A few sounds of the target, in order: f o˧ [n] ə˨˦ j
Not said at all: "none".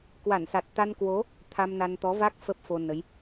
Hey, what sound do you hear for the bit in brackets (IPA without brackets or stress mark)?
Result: n